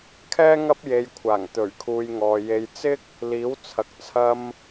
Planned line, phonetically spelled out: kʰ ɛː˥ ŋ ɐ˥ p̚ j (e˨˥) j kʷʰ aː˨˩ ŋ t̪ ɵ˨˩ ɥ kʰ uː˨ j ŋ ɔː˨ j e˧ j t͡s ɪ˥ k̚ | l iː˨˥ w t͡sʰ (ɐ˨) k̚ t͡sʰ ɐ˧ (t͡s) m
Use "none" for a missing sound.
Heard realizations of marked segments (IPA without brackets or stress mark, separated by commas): e˧, ɐ˨, none